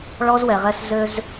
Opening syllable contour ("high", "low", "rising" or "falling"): high